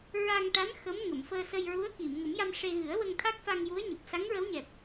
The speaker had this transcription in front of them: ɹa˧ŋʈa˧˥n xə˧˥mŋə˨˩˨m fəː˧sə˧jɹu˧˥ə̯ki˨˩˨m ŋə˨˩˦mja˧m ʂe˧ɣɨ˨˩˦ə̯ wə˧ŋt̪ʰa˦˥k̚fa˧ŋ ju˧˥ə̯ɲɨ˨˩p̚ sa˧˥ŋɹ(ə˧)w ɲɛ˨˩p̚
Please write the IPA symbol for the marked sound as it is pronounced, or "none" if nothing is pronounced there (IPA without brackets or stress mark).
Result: ə˧˥